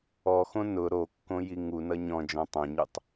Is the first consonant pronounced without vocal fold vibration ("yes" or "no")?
yes